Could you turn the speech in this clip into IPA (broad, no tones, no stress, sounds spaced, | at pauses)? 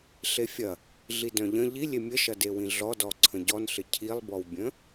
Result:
ɬ e fʲ ɐ | ɮ i d œ̃ ʎ ə̃ ʎ i lʲ e mʲ ə ʃ ɐ d e w ĩ ɮ ɔ d ɔ ǀʰ ə̃ ɟ ɔ n ɬ ɪ cʰ i lˠ b ɔ w bʲ ə̃